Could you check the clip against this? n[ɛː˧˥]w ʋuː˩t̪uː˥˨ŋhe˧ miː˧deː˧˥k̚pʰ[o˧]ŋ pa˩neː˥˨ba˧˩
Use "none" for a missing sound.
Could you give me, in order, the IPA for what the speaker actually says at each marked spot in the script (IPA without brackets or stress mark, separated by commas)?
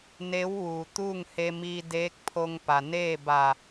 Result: eː˧˥, o˧